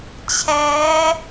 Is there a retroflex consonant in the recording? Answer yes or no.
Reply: no